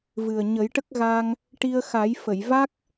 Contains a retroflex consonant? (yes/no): yes